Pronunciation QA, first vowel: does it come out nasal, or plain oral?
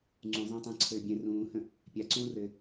nasal